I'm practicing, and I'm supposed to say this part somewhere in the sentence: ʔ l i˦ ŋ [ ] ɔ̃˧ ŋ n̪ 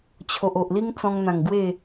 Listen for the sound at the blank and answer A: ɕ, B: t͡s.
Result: B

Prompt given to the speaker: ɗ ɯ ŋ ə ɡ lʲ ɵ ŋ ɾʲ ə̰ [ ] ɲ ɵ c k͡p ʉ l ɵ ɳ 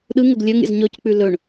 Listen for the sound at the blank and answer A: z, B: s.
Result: A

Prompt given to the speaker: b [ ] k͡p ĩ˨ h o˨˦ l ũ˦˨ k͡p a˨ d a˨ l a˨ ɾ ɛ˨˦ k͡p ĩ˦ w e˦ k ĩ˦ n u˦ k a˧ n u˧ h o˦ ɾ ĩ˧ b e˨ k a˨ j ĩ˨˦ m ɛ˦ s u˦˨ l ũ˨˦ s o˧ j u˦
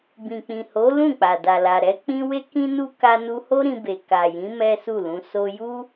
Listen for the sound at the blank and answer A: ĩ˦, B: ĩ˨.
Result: B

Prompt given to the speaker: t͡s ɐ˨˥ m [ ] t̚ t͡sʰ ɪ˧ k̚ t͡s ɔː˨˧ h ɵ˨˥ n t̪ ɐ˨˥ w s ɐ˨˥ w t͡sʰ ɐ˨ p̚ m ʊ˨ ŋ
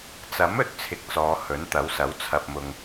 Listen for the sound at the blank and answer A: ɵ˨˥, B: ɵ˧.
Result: B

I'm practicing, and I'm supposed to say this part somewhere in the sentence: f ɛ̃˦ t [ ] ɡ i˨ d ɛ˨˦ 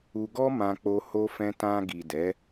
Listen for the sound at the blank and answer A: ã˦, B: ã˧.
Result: B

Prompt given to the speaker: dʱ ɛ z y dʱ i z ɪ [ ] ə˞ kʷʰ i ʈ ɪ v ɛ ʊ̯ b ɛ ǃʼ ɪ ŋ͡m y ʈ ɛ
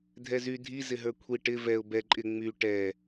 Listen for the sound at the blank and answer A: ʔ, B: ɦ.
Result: B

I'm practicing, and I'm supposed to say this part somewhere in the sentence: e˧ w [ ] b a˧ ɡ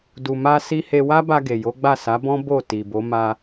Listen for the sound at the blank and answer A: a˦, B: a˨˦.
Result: A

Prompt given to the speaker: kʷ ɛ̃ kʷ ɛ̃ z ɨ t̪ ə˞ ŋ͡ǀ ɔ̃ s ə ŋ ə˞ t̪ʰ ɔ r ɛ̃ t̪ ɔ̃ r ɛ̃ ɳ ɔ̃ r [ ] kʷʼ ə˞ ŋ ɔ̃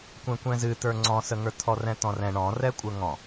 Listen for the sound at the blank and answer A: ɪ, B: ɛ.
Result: B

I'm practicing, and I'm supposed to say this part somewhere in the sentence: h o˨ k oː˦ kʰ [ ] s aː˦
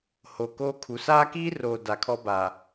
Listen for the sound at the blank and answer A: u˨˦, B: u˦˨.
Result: A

